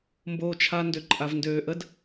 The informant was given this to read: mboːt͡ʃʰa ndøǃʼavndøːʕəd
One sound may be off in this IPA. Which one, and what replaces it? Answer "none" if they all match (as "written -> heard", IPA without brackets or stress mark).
ʕ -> ʔ